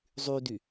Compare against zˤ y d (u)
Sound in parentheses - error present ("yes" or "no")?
yes